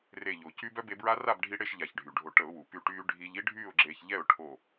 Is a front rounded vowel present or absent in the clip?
present